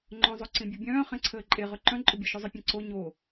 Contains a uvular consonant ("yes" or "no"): yes